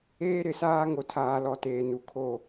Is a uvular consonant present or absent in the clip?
absent